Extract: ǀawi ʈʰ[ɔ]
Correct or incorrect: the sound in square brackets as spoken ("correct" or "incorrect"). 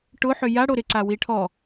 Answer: correct